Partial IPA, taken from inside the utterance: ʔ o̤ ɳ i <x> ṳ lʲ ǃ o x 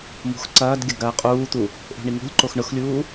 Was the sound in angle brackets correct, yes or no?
no